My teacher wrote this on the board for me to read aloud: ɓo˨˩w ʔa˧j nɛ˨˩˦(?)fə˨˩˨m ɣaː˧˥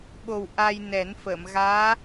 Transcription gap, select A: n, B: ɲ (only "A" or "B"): A